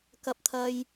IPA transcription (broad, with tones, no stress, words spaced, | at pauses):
kɐ˥p̚t̪ʰɐ˥j